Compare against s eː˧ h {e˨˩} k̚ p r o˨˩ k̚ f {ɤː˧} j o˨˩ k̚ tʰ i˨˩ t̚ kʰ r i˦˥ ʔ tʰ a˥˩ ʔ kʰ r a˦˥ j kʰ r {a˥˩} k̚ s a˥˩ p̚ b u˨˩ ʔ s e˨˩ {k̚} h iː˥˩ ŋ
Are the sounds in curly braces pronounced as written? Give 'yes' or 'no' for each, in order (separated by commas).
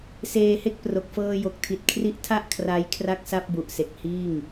no, yes, yes, yes